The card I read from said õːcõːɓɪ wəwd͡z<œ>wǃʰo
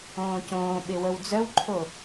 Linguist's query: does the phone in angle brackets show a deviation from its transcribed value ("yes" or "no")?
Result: no